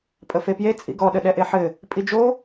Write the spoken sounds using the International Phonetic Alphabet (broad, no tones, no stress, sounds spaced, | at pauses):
pʼ ə f e p j e t͡sʼ ḭ ɡ ɔ ɗ ə ɗ ɛ ʔ e ħ ɘ | pʼ i d͡ʒ o